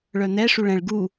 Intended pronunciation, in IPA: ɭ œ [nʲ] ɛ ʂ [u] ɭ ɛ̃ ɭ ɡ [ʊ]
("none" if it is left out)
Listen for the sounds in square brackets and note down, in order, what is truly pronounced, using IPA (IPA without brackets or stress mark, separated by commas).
n̪, u, u